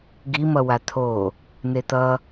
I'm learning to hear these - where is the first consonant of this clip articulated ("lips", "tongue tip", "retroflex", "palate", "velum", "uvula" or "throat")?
velum